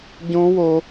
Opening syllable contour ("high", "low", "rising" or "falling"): high